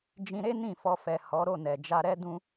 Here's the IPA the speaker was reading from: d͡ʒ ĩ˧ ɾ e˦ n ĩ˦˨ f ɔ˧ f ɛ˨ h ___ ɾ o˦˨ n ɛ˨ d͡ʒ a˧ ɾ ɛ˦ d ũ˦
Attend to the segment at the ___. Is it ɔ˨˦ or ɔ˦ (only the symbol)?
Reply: ɔ˨˦